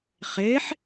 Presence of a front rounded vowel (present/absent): absent